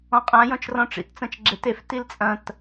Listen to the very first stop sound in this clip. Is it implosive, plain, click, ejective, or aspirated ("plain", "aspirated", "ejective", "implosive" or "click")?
ejective